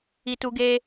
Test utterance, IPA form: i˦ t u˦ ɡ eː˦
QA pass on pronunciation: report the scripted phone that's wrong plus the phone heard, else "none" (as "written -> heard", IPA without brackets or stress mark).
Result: none